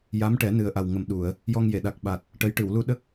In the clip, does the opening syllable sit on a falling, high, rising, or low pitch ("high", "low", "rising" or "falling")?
rising